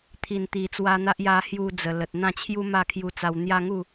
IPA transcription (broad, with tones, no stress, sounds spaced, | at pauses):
t̪ʰ i˨˩ n t̪ i˨˩ t͡s w a˧ n̪ a˦ ʔ j a˧ h j u˧ d͡z ə˨˩ l ə˨ t̚ n̪ ã˥˧ t͡ɕʰ j u˦ m a˥˧ kʰ j u˧ t͡s a˧ w n̪ j a˦ ŋ u˥˧